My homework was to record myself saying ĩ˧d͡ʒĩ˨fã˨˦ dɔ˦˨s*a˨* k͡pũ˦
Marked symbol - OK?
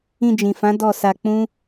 no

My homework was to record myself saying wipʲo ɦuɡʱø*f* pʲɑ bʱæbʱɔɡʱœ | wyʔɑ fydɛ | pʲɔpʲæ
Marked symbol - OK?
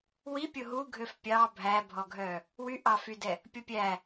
yes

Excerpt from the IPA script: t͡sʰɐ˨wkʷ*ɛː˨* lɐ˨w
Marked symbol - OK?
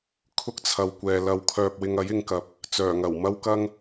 yes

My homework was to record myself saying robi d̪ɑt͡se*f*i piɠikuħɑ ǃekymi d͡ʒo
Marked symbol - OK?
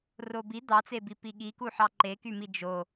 no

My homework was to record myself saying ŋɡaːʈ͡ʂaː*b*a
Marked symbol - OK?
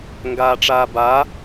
yes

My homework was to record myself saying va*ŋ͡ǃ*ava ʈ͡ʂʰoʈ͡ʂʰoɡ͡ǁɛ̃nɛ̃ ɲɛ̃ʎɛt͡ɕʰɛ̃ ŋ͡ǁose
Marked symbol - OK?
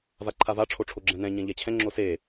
no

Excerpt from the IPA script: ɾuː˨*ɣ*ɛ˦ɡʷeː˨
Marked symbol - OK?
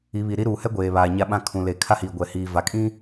no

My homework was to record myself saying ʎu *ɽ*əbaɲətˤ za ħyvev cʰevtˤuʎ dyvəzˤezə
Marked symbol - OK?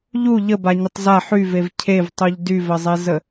no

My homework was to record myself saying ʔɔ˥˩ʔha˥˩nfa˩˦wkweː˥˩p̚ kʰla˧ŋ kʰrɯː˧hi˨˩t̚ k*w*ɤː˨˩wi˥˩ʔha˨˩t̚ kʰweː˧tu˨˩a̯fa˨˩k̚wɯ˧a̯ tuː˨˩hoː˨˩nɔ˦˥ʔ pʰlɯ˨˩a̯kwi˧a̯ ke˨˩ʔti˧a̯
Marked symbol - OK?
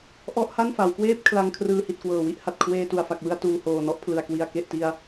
yes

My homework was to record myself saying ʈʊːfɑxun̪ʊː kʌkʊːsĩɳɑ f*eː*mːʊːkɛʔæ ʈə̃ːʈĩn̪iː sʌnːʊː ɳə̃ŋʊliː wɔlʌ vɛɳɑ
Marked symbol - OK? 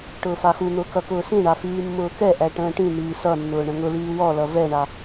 no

